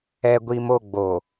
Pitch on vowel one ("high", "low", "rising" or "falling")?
low